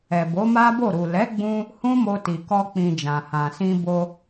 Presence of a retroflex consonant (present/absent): absent